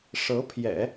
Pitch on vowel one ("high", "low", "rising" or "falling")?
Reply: rising